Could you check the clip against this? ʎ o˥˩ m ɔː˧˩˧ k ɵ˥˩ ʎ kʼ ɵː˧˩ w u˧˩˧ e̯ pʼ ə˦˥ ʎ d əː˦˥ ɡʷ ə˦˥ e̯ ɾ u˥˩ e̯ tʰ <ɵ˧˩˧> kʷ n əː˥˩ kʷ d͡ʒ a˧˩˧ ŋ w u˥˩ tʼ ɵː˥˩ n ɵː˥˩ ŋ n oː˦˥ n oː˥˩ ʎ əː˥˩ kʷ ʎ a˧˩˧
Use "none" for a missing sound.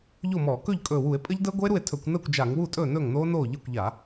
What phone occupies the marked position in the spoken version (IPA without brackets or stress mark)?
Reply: ɵ˧˩˧